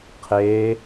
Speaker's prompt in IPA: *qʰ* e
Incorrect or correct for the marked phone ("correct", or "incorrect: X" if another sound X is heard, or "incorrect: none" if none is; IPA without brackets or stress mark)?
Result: correct